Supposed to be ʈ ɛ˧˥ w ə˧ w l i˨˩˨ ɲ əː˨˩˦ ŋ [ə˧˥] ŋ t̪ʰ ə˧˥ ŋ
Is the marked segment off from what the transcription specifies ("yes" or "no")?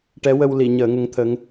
no